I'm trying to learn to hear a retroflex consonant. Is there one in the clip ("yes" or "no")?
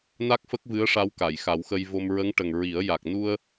yes